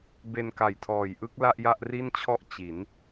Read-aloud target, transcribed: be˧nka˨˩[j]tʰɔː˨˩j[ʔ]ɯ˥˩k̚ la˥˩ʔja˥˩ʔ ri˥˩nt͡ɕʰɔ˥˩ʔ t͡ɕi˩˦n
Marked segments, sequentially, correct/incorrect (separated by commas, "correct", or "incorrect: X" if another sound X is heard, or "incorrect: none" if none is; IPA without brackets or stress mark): correct, correct